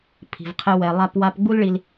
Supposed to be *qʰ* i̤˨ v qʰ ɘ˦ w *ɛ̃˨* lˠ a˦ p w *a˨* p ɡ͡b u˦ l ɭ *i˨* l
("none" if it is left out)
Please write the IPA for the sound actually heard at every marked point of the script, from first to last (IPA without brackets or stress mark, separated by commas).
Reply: pʰ, ɛ˨, a˦, i˨